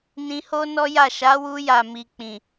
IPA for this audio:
n ĩ˧ h o˦ n ɔ˦ j a˦˨ ʃ a˨˦ w u˧ j a˨ m i˨ k͡p ĩ˨

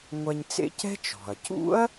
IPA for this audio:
ŋʷ ɛ˧ ɲ t͡s ḛ˥ c ɛ̤˥ t͡ʃ ɔ̤˩ ɐ̯ c ṵ˥ ɐ̯

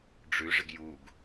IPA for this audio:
ɖ͡ʐ ʉ ʐ ɪ ɡ j u ɡ

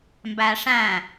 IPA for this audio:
m b æ ʂ æ̃

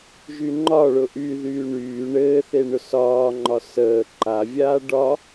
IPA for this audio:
ʒ y ŋ͡ǃ ɒ ɭ ʊ ʔ y ð yː ɳ yː ɳ ɘː θ e ɳ ʊ s ɒː ŋ͡ǃ ɒ s əː ǃ a vʲ aː ɖ ɒ

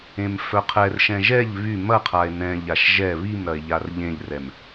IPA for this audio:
ẽ m f œ qʰ ɛ r ʃ ɛ̃ ʒ ɛ ʎ β y m ɐ qʰ a e̯ n ɛ̃ ʎ a ʃ ʒ ɛ β i m ɾ ɐ e̯ ʎ a r ʎ ẽ ʎ r ɛ m

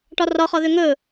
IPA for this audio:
ʈ ɒ r ɒ χ ɒ ð ø ŋ ɵ

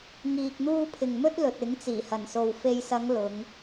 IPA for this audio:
ŋ iː˧ k̚ n̪ uː˥ pʰ ɪ˨ ŋ m ɵ˥ t̚ l ɵ˨ t̚ ɪ˨˥ ŋ t͡s iː˨˩ h ɐ˨˩ n s o˨ w f e˨ j s ɐ˨˧ ŋ l ʊ˨˧ ŋ

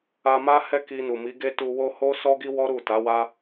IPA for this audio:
a˧ m a˦ h ɛ˦ k i˧ n u˨ m i˨˦ ɡ e˦ t u˧ w o˦ h o˦ s ɔ˦ ɡ i˦ w ɔ˦ ɾ u˦˨ t a˨˦ w a˦

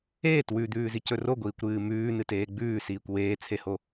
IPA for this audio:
eː t w ʉ d̪ ʉː z i c ɵ r o ɡʷ iː kʷ ɾ ɨː m ʉː n ɨ t eː ɡ͡b ʉː s iː kʷ w eː t͡sʰ e h o

